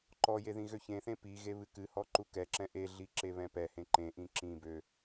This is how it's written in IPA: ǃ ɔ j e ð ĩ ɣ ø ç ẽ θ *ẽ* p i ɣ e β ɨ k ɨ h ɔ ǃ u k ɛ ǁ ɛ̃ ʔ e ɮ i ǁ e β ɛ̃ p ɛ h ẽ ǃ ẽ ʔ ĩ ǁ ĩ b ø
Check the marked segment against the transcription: correct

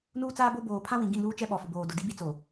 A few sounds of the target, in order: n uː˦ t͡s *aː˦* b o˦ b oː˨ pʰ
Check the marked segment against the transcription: correct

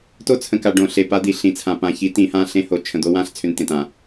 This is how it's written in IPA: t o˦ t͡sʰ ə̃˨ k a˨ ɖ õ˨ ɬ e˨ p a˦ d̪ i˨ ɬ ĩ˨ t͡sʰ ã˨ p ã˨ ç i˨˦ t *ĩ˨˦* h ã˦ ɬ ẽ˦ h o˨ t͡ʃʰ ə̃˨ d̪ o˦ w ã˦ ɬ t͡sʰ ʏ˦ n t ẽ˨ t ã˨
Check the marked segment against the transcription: correct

